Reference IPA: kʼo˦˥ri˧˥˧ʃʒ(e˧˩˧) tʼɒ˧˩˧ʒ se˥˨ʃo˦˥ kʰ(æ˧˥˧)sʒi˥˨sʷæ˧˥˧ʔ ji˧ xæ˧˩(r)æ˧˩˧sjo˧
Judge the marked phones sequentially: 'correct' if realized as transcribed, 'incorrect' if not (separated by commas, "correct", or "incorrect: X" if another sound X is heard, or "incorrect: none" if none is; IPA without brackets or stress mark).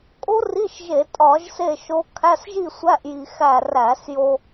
correct, correct, correct